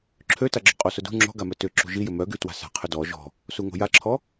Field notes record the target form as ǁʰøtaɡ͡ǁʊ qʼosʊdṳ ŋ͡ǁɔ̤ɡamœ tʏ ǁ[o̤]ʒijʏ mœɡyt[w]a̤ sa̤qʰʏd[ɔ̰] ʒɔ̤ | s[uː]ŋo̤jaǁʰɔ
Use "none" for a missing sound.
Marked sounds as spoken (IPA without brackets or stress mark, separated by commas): ṳ, w, ɔ, u